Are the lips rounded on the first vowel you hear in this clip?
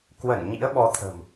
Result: no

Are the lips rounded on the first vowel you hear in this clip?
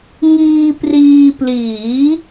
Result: no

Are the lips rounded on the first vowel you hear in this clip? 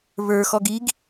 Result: no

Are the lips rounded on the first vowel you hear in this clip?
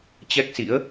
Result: no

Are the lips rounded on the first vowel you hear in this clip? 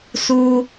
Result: yes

